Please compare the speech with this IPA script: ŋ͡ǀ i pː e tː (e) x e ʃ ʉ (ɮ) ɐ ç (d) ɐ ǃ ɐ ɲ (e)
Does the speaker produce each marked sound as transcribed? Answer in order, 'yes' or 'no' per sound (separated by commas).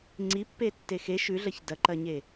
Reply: yes, yes, yes, yes